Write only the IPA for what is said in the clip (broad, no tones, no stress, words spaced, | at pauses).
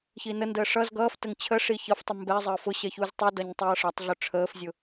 çinəndəː ʂʌz ɡʌːftəŋ t͡ɕʰəʂi çʌftˤu mbɛzˤəː fʊɕɛ çuztˤudʌɲ tˤʌːʂʌtˤɮʊ ʈ͡ʂʰəːfzʲʊ